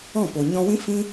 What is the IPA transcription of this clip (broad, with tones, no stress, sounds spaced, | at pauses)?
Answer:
ɔ̃˦˨ p o˨ ɲ ɔ̃˧ w ĩ˦ f ĩ˦